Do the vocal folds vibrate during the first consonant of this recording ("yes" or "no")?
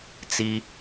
no